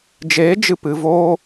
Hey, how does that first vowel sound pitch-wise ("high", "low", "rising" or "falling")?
rising